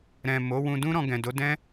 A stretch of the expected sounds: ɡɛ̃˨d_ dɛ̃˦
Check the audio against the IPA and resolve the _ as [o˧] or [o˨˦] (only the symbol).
o˨˦